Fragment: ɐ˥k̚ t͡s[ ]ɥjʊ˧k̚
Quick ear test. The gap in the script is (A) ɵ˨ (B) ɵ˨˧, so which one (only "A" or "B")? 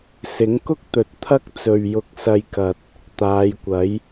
A